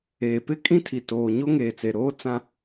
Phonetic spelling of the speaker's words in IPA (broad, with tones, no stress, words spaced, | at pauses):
eː˨pɪ˦ kʼĩ˦tʰi˨ toː˨ ɲo˦ŋeː˨t͡se˨ɾoː˦ t͡sã˦